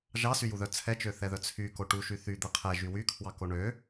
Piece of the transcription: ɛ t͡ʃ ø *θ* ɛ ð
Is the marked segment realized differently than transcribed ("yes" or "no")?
no